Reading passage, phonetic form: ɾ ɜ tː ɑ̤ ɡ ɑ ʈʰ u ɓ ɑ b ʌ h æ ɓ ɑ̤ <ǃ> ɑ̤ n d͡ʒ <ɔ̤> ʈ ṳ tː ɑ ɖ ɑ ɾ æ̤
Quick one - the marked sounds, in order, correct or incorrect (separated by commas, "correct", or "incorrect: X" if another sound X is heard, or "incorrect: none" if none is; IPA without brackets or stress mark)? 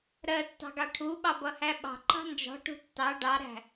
correct, correct